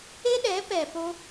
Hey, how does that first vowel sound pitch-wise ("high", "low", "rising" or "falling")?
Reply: high